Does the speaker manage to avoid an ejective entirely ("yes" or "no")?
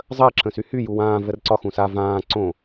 yes